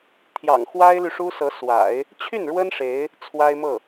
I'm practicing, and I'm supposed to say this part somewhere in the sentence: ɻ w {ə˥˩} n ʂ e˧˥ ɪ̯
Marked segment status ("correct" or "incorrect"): incorrect